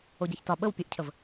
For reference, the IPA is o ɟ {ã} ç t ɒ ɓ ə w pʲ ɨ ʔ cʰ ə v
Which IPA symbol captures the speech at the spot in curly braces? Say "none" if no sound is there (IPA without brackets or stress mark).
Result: a